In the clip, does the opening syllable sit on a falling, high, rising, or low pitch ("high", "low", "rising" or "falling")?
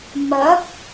rising